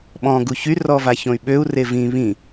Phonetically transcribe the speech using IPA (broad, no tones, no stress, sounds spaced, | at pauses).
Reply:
ɓ ɔ̃ ɡ u ç y r ɔ v a ç õ y̯ ɓ ø u̯ r e v ĩ β ĩ